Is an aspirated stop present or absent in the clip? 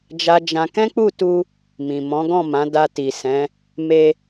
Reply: absent